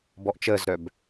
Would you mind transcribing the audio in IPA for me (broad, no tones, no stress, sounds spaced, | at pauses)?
b ɔ ʔ t͡ʃ əː z ɾ œ b